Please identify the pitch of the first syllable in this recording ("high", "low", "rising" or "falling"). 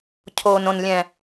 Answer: low